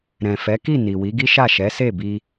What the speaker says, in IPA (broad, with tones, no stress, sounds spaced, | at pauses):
ɾ ɛ̃˨ f ɛ˨˦ k i˦˨ n i˨ w i˨˦ ɡ i˦ ʃ a˦˨ ʃ ɛ˨˦ s e˦˨ b i˧